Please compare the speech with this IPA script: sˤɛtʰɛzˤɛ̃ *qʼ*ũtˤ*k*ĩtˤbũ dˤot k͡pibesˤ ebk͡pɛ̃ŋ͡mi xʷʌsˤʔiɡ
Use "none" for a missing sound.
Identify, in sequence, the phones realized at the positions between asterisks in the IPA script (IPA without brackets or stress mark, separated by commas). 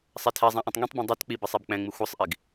ʔ, ŋ